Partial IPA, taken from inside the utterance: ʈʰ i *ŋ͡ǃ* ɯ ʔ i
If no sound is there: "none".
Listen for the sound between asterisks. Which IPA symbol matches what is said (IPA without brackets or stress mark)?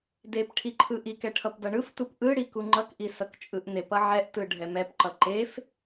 ǃʰ